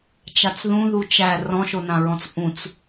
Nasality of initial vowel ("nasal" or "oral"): oral